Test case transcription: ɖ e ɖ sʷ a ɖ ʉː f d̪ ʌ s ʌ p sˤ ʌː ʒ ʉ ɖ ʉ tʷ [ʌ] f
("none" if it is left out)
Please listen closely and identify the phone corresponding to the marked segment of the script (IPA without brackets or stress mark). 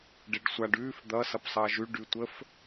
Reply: ə